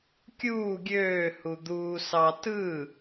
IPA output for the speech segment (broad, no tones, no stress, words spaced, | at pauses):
kʲuː ɡʲøː hud̪uːsɑ tɯ